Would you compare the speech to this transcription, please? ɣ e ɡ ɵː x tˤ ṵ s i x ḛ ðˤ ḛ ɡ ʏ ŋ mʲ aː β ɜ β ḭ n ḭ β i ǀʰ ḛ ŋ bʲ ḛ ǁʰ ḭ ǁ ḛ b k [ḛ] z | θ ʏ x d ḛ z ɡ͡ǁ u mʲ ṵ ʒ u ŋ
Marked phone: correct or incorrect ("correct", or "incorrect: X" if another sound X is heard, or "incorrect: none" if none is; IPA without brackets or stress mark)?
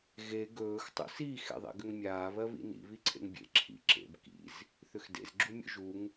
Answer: incorrect: ḭ